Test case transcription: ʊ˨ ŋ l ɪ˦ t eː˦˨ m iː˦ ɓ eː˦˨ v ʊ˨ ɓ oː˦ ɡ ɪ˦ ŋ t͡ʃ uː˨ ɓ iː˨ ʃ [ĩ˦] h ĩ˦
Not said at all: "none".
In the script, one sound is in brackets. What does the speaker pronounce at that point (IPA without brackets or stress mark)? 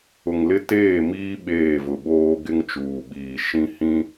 ĩ˦